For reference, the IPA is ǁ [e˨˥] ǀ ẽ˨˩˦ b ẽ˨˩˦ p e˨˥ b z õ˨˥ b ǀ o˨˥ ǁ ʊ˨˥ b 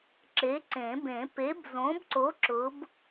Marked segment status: correct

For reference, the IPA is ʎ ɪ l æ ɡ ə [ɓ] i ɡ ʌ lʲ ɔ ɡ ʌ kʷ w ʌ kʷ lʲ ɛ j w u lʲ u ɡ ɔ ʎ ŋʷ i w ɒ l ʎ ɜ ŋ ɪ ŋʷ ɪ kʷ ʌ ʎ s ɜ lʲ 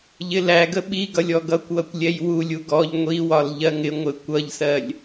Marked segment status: correct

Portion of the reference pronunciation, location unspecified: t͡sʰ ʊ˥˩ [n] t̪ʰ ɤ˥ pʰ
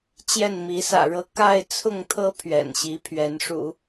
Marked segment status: incorrect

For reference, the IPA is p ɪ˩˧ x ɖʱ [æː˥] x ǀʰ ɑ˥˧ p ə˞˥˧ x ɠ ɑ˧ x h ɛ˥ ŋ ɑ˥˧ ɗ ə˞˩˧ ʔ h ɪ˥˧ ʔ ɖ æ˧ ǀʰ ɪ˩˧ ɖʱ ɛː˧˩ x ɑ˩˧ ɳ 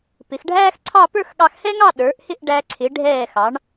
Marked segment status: correct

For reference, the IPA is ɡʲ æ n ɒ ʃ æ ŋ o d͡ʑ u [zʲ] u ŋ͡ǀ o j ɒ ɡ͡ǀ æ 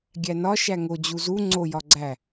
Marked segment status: incorrect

